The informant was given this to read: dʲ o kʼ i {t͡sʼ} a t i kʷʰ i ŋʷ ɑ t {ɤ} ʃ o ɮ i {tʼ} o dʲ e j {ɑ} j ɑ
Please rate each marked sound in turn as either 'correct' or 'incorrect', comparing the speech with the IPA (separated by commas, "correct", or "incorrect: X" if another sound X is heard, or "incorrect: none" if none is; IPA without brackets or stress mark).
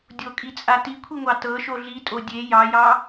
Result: correct, correct, correct, correct